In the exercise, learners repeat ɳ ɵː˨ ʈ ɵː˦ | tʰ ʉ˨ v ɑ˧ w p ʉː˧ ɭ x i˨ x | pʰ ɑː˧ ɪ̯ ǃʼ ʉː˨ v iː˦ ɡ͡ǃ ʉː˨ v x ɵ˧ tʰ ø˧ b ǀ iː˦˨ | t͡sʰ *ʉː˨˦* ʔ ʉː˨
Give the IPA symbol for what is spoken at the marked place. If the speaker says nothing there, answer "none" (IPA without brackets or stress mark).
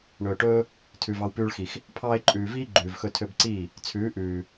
ʉː˨˦